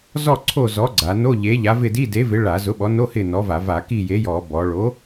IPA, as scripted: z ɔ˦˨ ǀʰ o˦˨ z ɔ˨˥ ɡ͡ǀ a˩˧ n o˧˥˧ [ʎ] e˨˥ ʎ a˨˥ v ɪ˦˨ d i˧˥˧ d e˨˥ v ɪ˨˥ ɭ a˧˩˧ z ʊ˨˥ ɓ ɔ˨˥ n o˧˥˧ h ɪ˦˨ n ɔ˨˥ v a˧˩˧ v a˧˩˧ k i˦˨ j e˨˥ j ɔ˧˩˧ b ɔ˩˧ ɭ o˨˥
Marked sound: correct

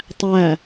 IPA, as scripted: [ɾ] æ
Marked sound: incorrect: tˤ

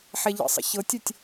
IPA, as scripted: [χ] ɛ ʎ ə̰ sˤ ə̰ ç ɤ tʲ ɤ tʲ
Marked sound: incorrect: ħ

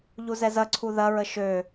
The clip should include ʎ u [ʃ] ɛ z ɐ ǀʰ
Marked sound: incorrect: z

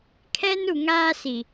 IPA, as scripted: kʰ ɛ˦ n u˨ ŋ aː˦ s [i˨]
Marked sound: correct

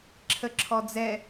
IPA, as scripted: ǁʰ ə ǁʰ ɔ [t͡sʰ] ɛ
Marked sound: incorrect: d͡z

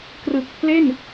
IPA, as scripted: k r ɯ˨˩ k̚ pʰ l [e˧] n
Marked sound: incorrect: e˥˩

